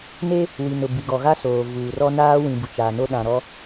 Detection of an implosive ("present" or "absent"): present